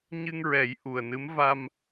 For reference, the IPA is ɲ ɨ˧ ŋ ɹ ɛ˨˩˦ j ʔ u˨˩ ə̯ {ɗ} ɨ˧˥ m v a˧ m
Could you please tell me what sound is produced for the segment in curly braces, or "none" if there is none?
n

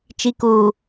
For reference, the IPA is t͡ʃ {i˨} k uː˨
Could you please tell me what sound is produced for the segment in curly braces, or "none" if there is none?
i˨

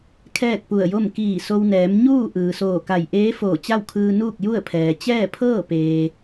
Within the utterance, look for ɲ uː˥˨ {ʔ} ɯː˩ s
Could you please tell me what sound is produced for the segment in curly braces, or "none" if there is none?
ʔ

